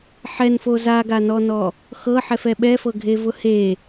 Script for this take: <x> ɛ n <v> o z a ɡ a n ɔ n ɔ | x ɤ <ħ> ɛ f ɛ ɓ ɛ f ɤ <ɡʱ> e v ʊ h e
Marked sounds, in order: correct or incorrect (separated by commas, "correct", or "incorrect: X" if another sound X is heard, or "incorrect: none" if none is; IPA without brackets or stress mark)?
incorrect: ħ, incorrect: f, correct, correct